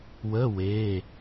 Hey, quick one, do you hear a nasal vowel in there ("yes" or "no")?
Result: no